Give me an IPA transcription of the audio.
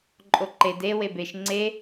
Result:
ǃʼoǃed e webeʃ ŋ͡ǀe

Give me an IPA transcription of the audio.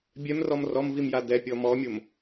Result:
bʲɛmrɔm rɔmvimja dɛpʲɔ mɔmʲom

